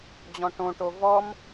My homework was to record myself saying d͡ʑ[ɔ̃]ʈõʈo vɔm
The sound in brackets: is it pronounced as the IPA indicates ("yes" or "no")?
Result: yes